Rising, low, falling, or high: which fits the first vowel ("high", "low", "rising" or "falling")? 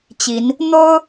rising